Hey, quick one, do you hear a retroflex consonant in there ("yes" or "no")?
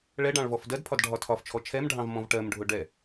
yes